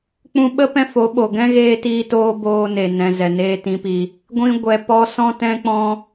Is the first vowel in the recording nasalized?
yes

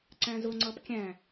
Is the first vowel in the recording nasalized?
yes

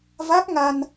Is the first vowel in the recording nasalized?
no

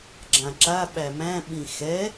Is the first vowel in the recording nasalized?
yes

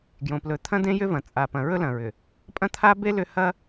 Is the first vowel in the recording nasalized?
yes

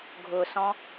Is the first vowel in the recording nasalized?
no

